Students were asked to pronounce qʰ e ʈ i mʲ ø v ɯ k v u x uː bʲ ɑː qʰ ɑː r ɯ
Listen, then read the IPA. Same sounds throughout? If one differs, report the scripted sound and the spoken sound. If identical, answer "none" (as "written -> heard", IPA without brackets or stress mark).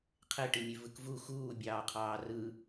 none